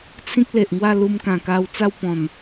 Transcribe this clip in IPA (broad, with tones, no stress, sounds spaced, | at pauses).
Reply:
t͡sʰ ĩ˦ k̚ l e˨ ʔ ŋ w a˥˧ l u˧ m k ã˨˩ k a˧ w t͡s a˥˧ w p ɔ̃˨˩ n